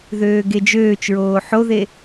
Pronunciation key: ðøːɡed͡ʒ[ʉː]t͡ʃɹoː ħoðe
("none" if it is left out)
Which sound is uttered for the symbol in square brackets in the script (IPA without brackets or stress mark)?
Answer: øː